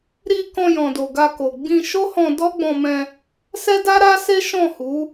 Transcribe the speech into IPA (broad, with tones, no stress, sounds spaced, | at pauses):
ɾ i˧ k ɔ̃˧ j ɔ̃˨ d o˨ ɡ a˧ k o˨ ɡ͡b ĩ˧ ʃ o˦ h ɔ̃˧ d ɔ˦ ɡ͡b ɔ̃˧ m ɛ̃˧ | s ɛ˦ d a˦ ɾ a˦ s e˦ ʃ ɔ̃˦˨ h u˨˦